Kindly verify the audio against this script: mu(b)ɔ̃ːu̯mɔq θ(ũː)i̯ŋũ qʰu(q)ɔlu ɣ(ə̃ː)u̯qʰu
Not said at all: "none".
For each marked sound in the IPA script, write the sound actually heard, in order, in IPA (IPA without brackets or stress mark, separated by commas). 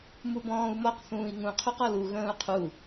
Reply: b, ũː, q, ə̃ː